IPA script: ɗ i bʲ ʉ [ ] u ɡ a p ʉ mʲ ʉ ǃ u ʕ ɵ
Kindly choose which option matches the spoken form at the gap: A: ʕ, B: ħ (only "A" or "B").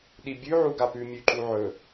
A